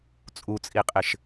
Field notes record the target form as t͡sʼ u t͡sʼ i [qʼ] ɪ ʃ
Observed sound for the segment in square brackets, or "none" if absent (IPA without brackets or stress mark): qʼ